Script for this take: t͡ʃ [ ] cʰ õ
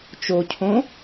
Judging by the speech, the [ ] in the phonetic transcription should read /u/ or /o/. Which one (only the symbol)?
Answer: o